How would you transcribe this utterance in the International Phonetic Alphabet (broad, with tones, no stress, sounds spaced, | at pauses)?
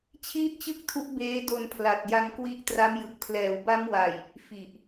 t͡ɕʰ iː˥˩ t̚ t͡ɕ ɯ˥˩ k̚ tʰ u˦˥ ʔ b eː˦˥ d o˧ n pʰ l a˨˩ t̚ j a˧ ŋ k w i˦˥ ʔ t r a˦˥ m j ɯ˨˩ k̚ pʰ l ɛː˩˦ w b a˦˥ m w a˨˩ j | f i˨˩ ʔ